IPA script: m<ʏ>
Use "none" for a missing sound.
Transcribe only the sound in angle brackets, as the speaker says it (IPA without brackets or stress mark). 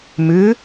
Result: ʏ